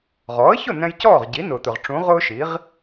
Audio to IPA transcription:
ʁ ɔː˩˥ ə̯ ç ʊ˥˩ n ɛ̃˧ j c ɔː˥˩ ʁ ɟ i˩˥ n ʊː˩ t̪ ʊ˩ ʁ ʈ͡ʂ ũ˩˥ ʁ ʊː˥ ʃ i˩˥ ʁ

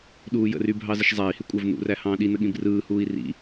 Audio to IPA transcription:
ɗ uː j ə̰ r y bʱ ɑ z ə ʃ zˤ æ i̯ h y kʷʼ æ v n ṵ r æ h ɑ̃ː ɗ i n ə ɠ ĩ b r ɯː h uː i̯ r ḭ

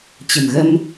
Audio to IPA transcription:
t͡ɕ ə̤˨˩ m ɣ ə˧ m

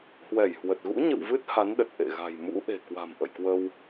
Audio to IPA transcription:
h w ɛ˧˩ j h w ə˨˩ t̚ ɣ ṵ˧˥ ɲ ə̰˧˨ w v ɨ˦˥ t̚ h a˨˦ n ɗ ə˨˩ t̚ ʔ ḛ˧˨ ɣ a̤˨˩ j m ṵ˧˥ ʔ e̤˨˩ k w a̤˨˩ m ʔ ə̰˧˨ j k w ə˧ w

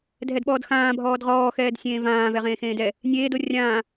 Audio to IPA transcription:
dʱ ɛ d ɓ ɔː d x ãː bʱ ɔː d ʁ ɔː x ɛː d sʲ ẽː v ãː v ɛ ʁ ẽː x ẽː d ɛ | nʲ eː d o rʲ ãː

